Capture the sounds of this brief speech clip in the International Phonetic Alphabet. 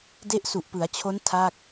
de˦˥ʔsu˨˩ʔpɯ˩˦a̯t͡ɕʰo˦˥n tʰa˥˩k̚

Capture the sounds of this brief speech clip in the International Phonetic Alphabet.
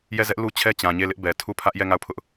jɛ˦˨zɛ˦ʔlu˦ t͡ɕʰɛ˦ t͡ɕã˨ɲe˦˨lɪ˦ʔbɛ˨ tʰu˦˨pʰä˦ʔ jɛ˦˨ŋa˦˨ʊ̯pʰʊ˦ʔ

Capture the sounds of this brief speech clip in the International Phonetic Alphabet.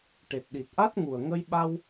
ʈe˨˩t̚ɗi˨˩t̚ʔa˦˥t̚ ŋu˨˩ə̯ŋə˧j ɓa˧w

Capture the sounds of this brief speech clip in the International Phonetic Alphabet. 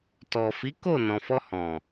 tɔ˨fi˨˦ko˦˨ nɔ̃˨fɔ˧hɔ̃˨

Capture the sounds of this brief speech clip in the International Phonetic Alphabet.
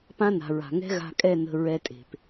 pã˦na̤˨ɹa̤˨ ŋɛ̤˦ɣa̤˧kʼɛ˦˨nə̤˧ ɹɛ˧tʼe̤˨p

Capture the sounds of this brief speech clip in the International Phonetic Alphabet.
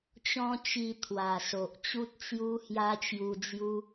t͡ɕɔ̃˦t͡ɕi˧ t̪ʰwa˨˩ so˨ʔt͡ɕu˦t̚t͡sju˦ hja˦t͡ɕju˧d͡zju˦

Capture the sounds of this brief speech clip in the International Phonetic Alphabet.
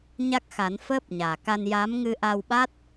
ɲa˦˥k̚xa˨˩˦n fəː˦˥p̚ɲaː˨˩ka˧n ja˧˥m ŋɨ˧ʔa˧wɓa˦˥t̚

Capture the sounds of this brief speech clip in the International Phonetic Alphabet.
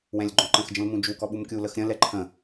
wɛ̃lʲɡ͡ǃɔ̃ǃə̃xd͡ʒə̃l mũd͡ʒukɔ ɓumkʲuləx ɾʲə̃lɛ ǃʰə̃

